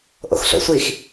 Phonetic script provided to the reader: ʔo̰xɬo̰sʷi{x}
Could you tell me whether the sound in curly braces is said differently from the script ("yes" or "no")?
no